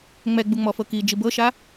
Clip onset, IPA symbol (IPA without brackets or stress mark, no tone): ŋ͡m